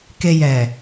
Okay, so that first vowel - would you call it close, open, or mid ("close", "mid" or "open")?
mid